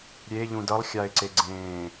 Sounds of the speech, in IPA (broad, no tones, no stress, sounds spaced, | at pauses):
ɾʲ e ʎ ũ d ʌ lˠ xʲ a ɪ̯ ǀ e ɡ͡ǀ ẽː